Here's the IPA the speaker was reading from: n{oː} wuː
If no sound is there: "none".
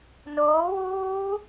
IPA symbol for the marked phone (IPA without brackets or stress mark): oː